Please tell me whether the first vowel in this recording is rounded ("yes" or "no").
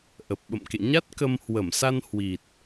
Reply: no